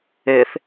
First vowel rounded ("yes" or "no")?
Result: no